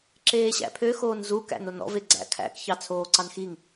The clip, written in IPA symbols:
ǁeːɕæ̰pʰø xoːnzu kæ̰nonɔ̰v eɡ͡ǀæ̰kʰæ̰k çɑt͡sʰoːǀɑnxiŋ

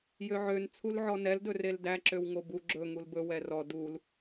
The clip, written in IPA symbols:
jøʕøn t͡sʰulʕɔnɛl dɵreldæ ǁøwŋobu ɡ͡ǁɵ ŋulbɵ wɛrɔ dul

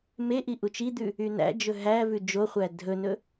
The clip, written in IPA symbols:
meʔi ʔut͡ʃid̪ʉ | ynæ̰d͡ʒɵ ɦæ vʉd͡ʒoχʷæ dʱɵnɵ

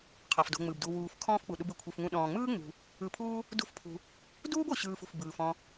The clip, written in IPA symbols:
qʰɔ˩fdo̤˨ŋ͡mɯ˩bdu˨ wuː˨f kʰɔ̃ː˦fk͡pu˩ ɗu˨bɯ˩kʷʰɯ˩fŋũ˨ ɗɔ̃ː˩ŋ͡mɯː˦ŋ͡mṳ˩ | ɯ˨pʰuː˦ | dṳ˦fpʰṳ˨ | duː˥bo˩ɕɯː˨f ṳ˩fbɯː˩fɔ̃˨

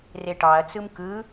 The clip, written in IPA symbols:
reʈɑɐ̯ t͡sɯmkɯ

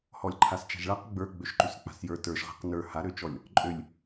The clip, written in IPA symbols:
hɔlʲǃʰast͡ʃa̤ʒɭaq ɡ͡bə˞ ɡ͡bøʃǃysk͡pa̤sjə˞ tə˞ʃʁa̤q nə˞ haɾøt͡ʃɔlʲ | ǃʼølʲ

